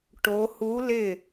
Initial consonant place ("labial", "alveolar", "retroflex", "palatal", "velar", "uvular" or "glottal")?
retroflex